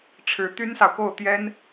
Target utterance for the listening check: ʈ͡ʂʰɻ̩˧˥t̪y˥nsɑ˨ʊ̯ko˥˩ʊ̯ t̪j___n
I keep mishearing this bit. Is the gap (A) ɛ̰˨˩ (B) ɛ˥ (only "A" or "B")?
B